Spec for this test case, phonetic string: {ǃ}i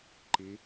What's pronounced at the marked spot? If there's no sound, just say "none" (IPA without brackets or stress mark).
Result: ǃ